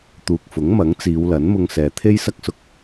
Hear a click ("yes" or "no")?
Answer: no